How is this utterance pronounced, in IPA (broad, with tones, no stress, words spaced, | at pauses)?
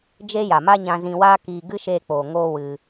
d͡ʒe˦ja˨ma˦ɲã˧ zĩ˧waː˦kiː˧ ɡɨ˦ʃeː˧k͡poː˨ŋoː˧ wɨ˧